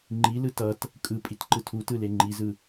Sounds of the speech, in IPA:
ŋ͡ǃilɯ tʌt | kʼɯpʼit ǃɯtʰutɯ leŋ͡ǃizɯ

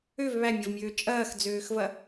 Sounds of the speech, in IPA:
øv βæmʲɐvmʲøː t͡ʃʼɐːxd͡zøːxvɐ

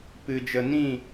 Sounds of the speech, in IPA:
pɨ˨ d͡ʒə˨nĩ˦˨

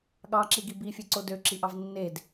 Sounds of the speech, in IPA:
ɠɑǁiɡi bifʲeǀo døǁiʔɑv nːed

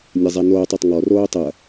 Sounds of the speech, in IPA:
nʲɐzˤɛnoːtˤ ɐtˤŋɔ roːtˤɐ

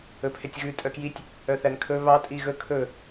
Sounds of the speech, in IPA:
ɵpʰetʲɣʉ tʼœkjitʲ | œθænkʰɵ βɑ tʼiɣɵ kʰɵ

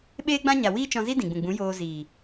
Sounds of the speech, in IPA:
ɓeː˦ɡ͡bã˦ɲa˨ wiː˦t͡ʃɔ̃˧zi˦ dĩ˨ɡ͡bũ˨ɡ͡bũ˨˦ joː˧ziː˨

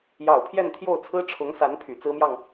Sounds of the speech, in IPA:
jɑ˨˩ʊ̯pʰjɛ˥˧nt̪ʰjo˥˩ʊ̯t͡sʰɹ̩˥ ʈ͡ʂʰʊ˧˥ŋsa˧˥n pʰy˨˩t͡sɹ̩˥mjɑ˨ŋ

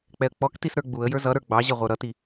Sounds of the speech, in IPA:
k͡pɛə̯k͡pɔktis ɾə˞ɡ͡buə̯jə˞ zʌɾə˞ ɡ͡bɑʑʌ ʁʷə˞ɾʌti

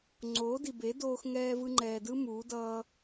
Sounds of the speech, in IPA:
ŋ͡ǀoː˨˦di˨be˨˦doː˧x ŋɛː˧vɯ˧ŋ͡ǃɛː˨dɯ˦ muː˨˦dʌː˧

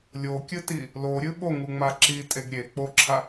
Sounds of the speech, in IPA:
lʲokʲɨti | loɾʲɨ ɓoŋuŋ͡ma ǁitʼeɡ ɾʲe k͡poǁʰa

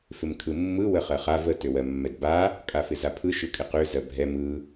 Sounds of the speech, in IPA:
fɪmkʰɯmːɯ wəχɜχa və tøwɜmːɛdba | kʼafɪzapʰɯ ʃɯkʼɪqø zɜbʱɛ mɯ

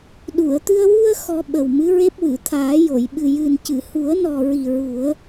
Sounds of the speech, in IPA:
ɗu˨˩˨ə̯t̪ɨ˧ə̯ wu˧ə̯ xɔ˧ɓə˨˩wmɨ˧˥ɹe˦˥p̚ wɨ˨˩˨t̪ʰaː˨˩˦jo˨˩˨j ɓɨ˨˩jɨ˨˩ncɨ˨˩˨ hu˨˩˦ə̯nɔ˨˩ɹi˨˩ ɹu˨˩˦ə̯

